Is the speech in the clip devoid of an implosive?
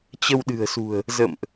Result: no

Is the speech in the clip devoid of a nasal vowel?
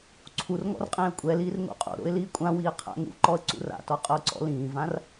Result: no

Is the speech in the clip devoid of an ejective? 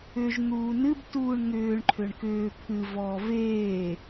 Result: yes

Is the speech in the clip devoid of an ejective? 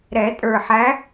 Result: no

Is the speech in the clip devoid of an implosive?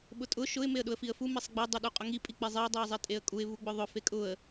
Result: no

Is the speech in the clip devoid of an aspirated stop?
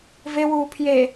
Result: no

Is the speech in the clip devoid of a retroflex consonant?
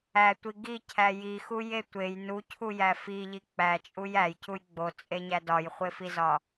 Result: yes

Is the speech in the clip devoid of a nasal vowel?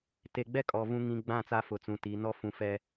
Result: no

